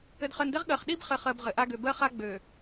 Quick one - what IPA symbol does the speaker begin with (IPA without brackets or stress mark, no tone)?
ɘ